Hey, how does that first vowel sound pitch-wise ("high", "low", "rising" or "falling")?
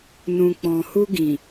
low